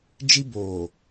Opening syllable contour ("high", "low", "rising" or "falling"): high